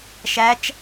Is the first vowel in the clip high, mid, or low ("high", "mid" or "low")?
low